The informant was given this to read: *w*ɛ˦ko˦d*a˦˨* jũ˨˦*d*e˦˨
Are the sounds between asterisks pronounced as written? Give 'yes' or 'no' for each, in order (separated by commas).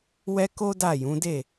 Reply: yes, yes, yes